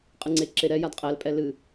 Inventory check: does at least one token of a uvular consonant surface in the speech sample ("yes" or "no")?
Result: yes